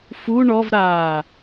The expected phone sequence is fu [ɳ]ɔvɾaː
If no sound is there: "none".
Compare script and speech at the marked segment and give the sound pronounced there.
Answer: ɳ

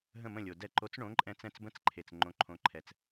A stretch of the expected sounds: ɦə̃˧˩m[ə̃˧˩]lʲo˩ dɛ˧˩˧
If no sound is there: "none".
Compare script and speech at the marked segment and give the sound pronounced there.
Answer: ə̃˧˩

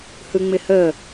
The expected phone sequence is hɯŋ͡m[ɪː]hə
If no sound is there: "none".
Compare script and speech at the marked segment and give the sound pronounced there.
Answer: ɪ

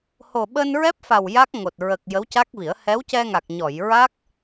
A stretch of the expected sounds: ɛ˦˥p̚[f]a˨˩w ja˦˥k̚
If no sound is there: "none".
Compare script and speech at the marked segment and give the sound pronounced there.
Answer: f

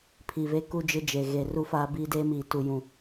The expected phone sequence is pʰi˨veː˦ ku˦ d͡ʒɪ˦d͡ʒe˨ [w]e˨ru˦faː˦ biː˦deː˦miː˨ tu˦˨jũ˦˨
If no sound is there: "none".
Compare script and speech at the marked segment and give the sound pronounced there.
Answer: ɣ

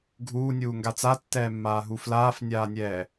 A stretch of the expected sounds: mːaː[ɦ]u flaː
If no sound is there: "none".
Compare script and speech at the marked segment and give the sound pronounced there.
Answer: ɦ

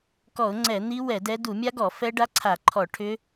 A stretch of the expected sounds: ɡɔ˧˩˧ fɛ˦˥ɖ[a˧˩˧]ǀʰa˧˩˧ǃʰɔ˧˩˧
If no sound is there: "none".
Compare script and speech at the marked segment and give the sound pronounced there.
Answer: a˦˥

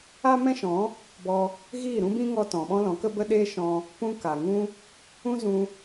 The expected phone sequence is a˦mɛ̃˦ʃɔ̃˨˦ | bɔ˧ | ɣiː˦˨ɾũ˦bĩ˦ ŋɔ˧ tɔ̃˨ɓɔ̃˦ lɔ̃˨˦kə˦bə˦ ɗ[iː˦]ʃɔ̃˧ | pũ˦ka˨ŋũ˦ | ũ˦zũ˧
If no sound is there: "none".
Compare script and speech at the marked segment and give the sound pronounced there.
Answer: eː˦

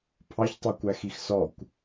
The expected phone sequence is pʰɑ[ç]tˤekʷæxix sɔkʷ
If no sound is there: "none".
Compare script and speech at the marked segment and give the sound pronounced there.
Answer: ç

